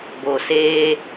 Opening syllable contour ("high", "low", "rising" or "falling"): low